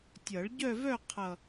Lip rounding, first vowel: unrounded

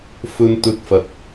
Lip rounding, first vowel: rounded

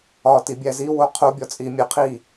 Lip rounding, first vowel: rounded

